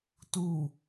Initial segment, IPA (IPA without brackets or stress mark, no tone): t